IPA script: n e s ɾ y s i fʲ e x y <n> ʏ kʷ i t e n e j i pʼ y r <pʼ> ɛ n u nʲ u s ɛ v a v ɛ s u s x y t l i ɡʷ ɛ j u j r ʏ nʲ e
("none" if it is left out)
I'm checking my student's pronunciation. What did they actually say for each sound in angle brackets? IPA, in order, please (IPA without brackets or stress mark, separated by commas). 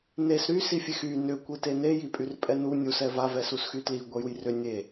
n, pʼ